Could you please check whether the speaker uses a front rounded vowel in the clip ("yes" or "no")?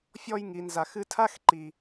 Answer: no